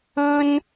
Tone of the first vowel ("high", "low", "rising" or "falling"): high